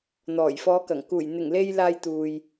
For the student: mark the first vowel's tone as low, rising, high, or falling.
low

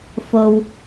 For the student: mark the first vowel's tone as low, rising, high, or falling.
low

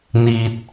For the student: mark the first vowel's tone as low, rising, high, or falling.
low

